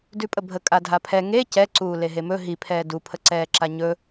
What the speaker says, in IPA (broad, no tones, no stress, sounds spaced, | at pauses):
d ʉ pʼ ə bʱ ə kʼ a dʱ a pʰ ɛ ŋ e c ɛ ǀ uː l e ɦ e m ɵ ɦ i pʰ ɛː d u pʰ ə ǀ ɛː ǁ a ɲ ɵ